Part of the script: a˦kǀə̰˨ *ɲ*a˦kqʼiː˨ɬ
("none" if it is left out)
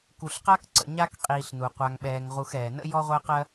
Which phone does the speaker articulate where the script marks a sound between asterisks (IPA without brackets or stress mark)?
ɲ